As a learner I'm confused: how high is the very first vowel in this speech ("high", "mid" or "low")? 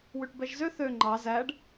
high